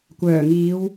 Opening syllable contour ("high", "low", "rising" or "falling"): low